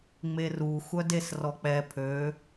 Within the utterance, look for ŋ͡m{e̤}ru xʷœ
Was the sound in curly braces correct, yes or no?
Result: no